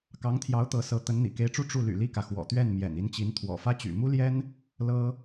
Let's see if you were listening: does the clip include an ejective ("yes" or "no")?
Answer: no